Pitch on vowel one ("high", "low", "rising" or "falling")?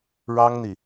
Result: high